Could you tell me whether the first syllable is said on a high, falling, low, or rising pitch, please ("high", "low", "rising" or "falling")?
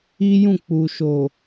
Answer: high